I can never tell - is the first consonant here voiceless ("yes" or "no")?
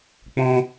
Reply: yes